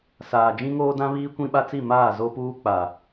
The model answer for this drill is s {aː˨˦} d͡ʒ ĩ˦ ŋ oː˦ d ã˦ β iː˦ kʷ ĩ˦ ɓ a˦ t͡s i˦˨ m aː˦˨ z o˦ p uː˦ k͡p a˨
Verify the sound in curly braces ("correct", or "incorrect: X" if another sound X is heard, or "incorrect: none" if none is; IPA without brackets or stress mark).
incorrect: aː˨